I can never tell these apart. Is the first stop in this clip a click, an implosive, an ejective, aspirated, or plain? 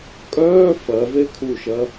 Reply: ejective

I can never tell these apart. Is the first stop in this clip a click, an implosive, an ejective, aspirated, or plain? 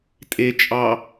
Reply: ejective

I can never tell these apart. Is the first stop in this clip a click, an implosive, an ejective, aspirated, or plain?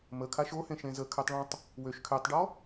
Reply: aspirated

